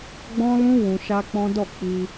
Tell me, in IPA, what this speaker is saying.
ɡ͡b ɔ̃˦ l ũ˦ w ũ˧ ʃ a˦ k͡p ɔ̃˦ d ɔ˦˨ k͡p i˧

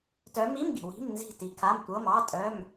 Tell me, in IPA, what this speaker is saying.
t œ˨˦ m i˧˥˧ m ɡ i̤˩ w i̤˧˥˧ m n z i̤˦˨ t i˨˦ kʰ a˧˥˧ m tʷ ɤ˧˥˧ m ɑ˧˥˧ tʼ œ˧˥˧ m

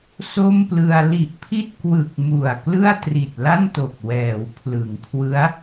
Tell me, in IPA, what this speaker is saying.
s o˥˩ m p l ɯ˧ a̯ l i˨˩ ʔ pʰ i˥˩ t̚ k w ɯ˨˩ k̚ m u˨˩ a̯ k l ɯ˥˩ a̯ t r i˨˩ t̚ l a˥˩ n t o˨˩ k̚ w ɛː˩˦ w pʰ l ɯ˩˦ ŋ kʰ w ɯ˦˥ a̯

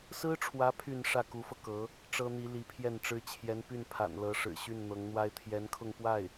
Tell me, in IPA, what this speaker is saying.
s ɹ̩˥ ʈ͡ʂʰ w ä˧˥ pʰ y˥˧ n ʂ ä˥˩ k u˧˥ f ɤ˧ k ɤ˧˥ | ʈ͡ʂ ɤ˥ n̪ i˧˥ l i˧˥ pʰ j ɛ˥˩ n ʈ͡ʂ ɻ̩˥ t͡ɕʰ j ɛ˧˥ n p y˥˩ n pʰ a̰˨˩ n l ɤ˧˥ ʂ ɻ̩˨˩ ɕ y˥˩ n n̪ ɤ˧˥ ŋ n̪ w a˥ ɪ̯ t̪ʰ j ɛ˧˥ n kʰ ʊ˥˧ ŋ p w a˥˩ ɪ̯

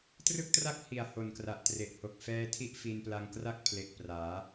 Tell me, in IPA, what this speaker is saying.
t r ɯ˥˩ k̚ t r a˥˩ k̚ h i˨˩ a̯ h o˨˩ n k r a˨˩ ʔ t r e˨˩ ʔ h o˨˩ k̚ f ɛː˦˥ tʰ i˥˩ ʔ f i˧ n p l a˧ ŋ k r a˥˩ k̚ pʰ l e˨˩ k̚ p r aː˩˦

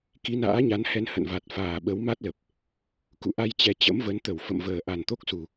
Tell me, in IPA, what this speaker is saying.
k i˨˦ n a̰ː˧˥ ɲ a˨˦ n h ɛ˧ n h ə̰˧˨ n v a˨˩ t̚ f aː˨˩ ɓ ə˨˦ w m a˦˥ t̚ l ə˨˩ p̚ | k ṵ˧˨ ʔ a˧ j t͡ɕ ɛ˨˦ t͡ɕ ə̰˧˥ m v ə˨˦ n t̪ ə˧˩ w f ə̰˧˨ m v əː˨˩ ʔ a˨˩ n t̪ o˦˥ k̚ s u˨˩

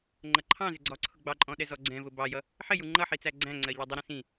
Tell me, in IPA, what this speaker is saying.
ŋ͡ǃ ʌ ǃʰ ɑ̃ z ɪ ɡ͡ǀ ɒ ǀʰ ʊ ɡ͡b ɑ ǃʼ ɔ̃ ɗ ɛ z ɔ ɡ͡ǀ ɛ̃ v ʊ b ɑ j ʌ | ħ ɪ j u ŋ͡ǃ ʌ ħ i t͡s æ ɡ͡ǀ æ̃ ŋ͡ǀ ɜ ʎ ɒ dˤ ɪ ɾ ĩ s ĩ

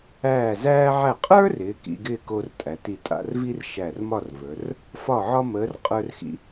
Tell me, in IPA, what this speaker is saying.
æː˧˩ z æː˧ ʕ æ˧˩ qʼ ə˞˥ r ɪː˩˧ k ḭ˧ ɡ ɪː˥˧ k o˧ r tʼ æ˩˧ t i˧˩ tʼ a̰˥˧ r v i˥ r ʃ æ˧˩ r m ɒ˥˧ r v ə˞˩˧ r | f ɒ˧˩ ʕ ɒ˧ m əː˩˧ r qʼ ə˞˧ r x ḭ˧

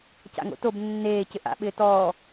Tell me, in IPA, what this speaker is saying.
c a̰ ŋ o̰ t o b nː eː c ɪ ʔ a̰ ɓ ɪː t ɔː

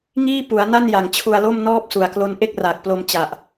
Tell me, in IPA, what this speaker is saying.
ŋ iː˥˩ p u˩˦ a̯ n a˥˩ n j a˩˦ ŋ t͡ɕʰ u˧ a̯ l o˥˩ m n ɔː˥˩ p̚ s u˨˩ a̯ k l o˦˥ n ʔ e˥˩ k̚ r aː˨˩ k̚ p l o˧ m t͡ɕ a˨˩ ʔ

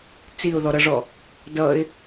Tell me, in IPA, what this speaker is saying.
t͡s i ʊ̯ ð ɔ ɾ ʌ ʐ ɔ | d ʌ ɪ̯

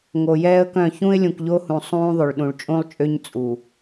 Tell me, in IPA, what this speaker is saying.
ŋ o˨ j ɛː˦ ə̯ k œ̃˦˨ ç ũ˦ ɪ̯ lʲ ũ˨ k ʎ o˦ h ũ˨ sˤ ũː˦ ðˤ o˨ ɭ ɗ ũ˨ ɭ t͡ʃʼ ũ˦ lˠ t͡ʃʼ ø˦ ɲ t͡sʼ u˨

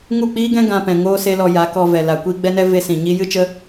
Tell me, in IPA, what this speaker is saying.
ŋ u˦˨ k͡p iː˦ ɡ ɛ̃˦ ɡ ã˧ p ɛ̃˨ ŋ oː˦ s e˦ l ɔ˧ j a˨˦ k ɔ˧ v ɛ˨ l a˨ kʷ iː˧ ɡ͡b ɛ˦ n ɛ˦ v e˦ s ĩ˨ ɲ i˦ j ɨ˦ t͡ʃ ə˦

